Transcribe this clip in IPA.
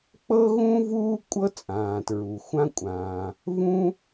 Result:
k͡p ɤ˥ ɣ ũ˥ v uː˥ kʷʼ ɤ˥ t͡sʼ ãː˩ t ɹ u˩ xʷ ã˥ kʷʼ ãː˩ | v ũ˥

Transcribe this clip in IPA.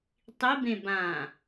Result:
tˤ i b ẽ b ã

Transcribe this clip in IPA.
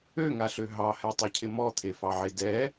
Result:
ø ŋ a ɬ ø ɦ ɑ h ɛ tˤ ɛ cʰ ɪ m ɔ t̪ʰ e f ɑ ʕ e d ɛ

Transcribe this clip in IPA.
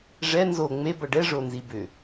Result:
ʐ ɛ n z o ŋ͡m e b ʌ ɖ ɛ ʐ o n z i b ʏ

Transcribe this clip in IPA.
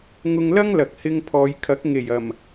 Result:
ŋ ʊ˧ ŋ l ɐ˥ ŋ l ɐ˨ k̚ h ɪ˧ ŋ pʰ ɔː˨˧ j kʰ ɐ˨˥ k̚ ŋ e˨˩ j ɐ˨˩ m

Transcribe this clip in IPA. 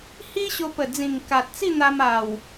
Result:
h i˦ ɕ o˧ p ə˨˩ d͡z ĩ˨˩ ŋ k a˨ t̚ t͡s i˥˧ n̪ a˧ m a˨˩ w

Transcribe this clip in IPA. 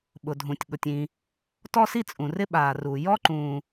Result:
ɓ ʊ˩ dʱ ũ˩ tʲ ɠ ʊ˩ tʲ ĩ˩ | t ɔ˥ s i˥ t͡sʼ ũ˩ r ɪ˥ ɓ aː˩ r u˩ j ɔ˥ ǃ ũː˩

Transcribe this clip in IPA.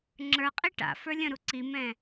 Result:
ŋ͡ǁ ə˞ qʼ i ʈ a̰ f ə˞ lʲ ə̃ ɾ u ǀ i m ɛ̃

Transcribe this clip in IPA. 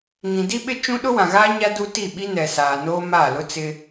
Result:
ŋ ĩ˨ d i˦ ɓ ɪ˦ t͡ʃ ũ˦ ɗ ʊ˦ w ã˨ ɣ aː˦ ɲ a˦ d u˦ t i˦˨ ɓ i˦ n ɛ˨ s aː˨ n oː˦ m aː˦˨ l ʊ˦ t͡s ɪ˦

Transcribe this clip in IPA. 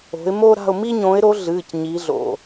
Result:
o̤˨˦ ɪ̯ m o˦ ɾ a̤˦˨ ʊ̯ m i˦ ɲ õ˨˦ ɪ̯ ɾ o˨˦ ɮ ɨː˩˧˩ c ɲ i˨˦ ɮ o̰˩˧˩

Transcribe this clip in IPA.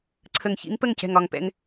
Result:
ǀʰ ə˨˩ ŋ ç ḭ˧˥ ŋ p ə˥˩ ŋ c ɛ̤˨˩ ŋ ɒ˨˩ ŋ p ɛ̰˧ ŋ

